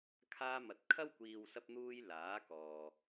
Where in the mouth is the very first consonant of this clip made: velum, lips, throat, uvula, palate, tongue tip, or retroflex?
velum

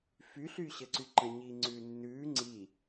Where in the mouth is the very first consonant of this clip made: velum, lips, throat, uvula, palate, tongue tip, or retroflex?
lips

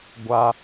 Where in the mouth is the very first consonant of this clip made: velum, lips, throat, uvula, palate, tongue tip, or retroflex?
velum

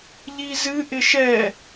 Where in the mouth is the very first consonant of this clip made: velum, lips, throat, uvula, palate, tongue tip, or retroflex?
palate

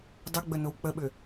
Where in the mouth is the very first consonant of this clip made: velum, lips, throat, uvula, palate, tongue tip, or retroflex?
tongue tip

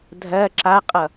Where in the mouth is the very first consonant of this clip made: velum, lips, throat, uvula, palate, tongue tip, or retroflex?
tongue tip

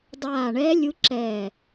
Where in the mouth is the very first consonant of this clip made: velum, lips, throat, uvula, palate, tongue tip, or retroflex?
tongue tip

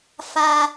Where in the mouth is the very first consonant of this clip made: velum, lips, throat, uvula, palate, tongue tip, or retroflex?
lips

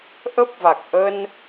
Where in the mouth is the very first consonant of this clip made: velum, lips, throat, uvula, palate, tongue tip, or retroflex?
throat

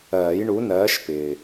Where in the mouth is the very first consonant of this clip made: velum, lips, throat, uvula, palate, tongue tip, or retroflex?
palate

